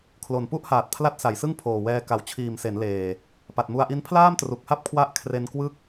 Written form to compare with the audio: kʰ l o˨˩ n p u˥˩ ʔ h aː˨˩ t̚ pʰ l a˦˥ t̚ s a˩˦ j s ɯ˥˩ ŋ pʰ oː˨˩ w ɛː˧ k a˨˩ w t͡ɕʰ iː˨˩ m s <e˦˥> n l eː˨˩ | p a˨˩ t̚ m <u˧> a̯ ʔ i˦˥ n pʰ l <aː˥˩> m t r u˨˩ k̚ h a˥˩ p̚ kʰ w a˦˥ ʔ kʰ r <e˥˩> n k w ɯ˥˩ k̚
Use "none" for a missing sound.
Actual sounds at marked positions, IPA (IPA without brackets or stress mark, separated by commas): e˩˦, u˧, aː˥˩, e˧